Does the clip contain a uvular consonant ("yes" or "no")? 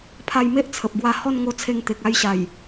no